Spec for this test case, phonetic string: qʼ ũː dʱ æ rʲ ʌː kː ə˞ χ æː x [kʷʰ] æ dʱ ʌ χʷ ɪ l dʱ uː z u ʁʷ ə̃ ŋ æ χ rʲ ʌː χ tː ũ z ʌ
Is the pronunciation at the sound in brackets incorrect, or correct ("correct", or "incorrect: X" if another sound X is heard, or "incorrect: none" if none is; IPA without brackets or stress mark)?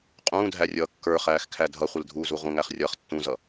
incorrect: kʰ